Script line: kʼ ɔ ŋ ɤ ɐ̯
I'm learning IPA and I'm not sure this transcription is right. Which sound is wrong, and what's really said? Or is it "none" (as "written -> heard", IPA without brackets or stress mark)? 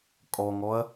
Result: ɤ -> ɔ